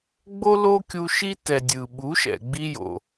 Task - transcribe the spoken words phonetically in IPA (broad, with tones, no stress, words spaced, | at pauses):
ɡ͡bo˦lo˦kʲu˧ ʃi˦tɛ˨ dʲɯ˨ ɓu˨˦ʃɛ̰˨ɡ͡bi˧ jo̰˨